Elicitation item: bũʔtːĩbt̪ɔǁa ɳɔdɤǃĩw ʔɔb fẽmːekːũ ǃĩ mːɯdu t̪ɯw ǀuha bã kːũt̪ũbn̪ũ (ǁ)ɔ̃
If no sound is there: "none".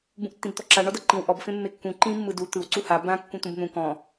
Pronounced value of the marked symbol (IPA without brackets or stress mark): k